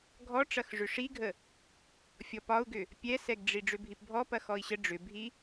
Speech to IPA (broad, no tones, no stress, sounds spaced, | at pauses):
ɡʱ ɔ ʈ͡ʂ ɐ x ʐ ʏ ʂ i ɡʱ ə | fʲ ɔ p ɒ u̯ ɡ ʏ | pʲ ɛ s ɛ ɡ ɖ͡ʐ i ɖ͡ʐ ʏ bʱ i p bʱ ɔ p ɐ x ɔ i̯ ɕ ə ɖ͡ʐ ʏ bʱ i